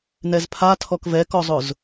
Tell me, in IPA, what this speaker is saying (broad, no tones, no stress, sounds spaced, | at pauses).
n ɛ z pʰ a tʰ ɔ k v ɛ k ɔ zˤ ʊ z